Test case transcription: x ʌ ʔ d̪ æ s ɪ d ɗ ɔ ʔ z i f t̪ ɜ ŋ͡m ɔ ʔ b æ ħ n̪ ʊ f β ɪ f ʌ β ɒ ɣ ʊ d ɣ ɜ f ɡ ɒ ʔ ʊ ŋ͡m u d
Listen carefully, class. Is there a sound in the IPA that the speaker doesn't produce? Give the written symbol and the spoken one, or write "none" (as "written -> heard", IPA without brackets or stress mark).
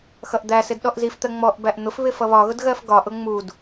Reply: ħ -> ʔ